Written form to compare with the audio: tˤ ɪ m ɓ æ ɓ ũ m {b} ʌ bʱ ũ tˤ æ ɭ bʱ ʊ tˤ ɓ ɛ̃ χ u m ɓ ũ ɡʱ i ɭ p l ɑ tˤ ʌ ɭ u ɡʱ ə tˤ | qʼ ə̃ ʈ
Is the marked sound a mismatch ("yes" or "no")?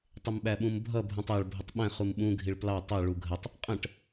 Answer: yes